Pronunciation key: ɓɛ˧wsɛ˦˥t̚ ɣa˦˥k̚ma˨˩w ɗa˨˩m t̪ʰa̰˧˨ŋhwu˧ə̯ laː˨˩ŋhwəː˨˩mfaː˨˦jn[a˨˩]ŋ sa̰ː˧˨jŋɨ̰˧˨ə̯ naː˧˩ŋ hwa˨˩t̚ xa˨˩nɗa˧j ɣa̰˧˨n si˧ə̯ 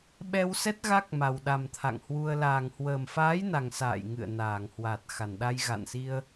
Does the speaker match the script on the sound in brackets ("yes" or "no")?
yes